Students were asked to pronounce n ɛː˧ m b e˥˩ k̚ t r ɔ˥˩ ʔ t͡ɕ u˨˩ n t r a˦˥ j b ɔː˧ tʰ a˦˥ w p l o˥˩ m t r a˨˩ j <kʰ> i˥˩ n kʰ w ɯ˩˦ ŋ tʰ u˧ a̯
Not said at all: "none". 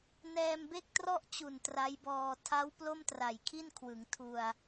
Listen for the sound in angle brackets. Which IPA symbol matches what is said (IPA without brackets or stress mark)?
kʰ